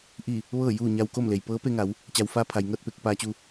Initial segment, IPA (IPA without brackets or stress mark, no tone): ʔ